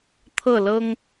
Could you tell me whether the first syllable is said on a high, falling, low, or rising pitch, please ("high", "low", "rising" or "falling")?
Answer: falling